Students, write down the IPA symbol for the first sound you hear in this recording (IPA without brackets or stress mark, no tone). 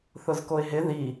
θ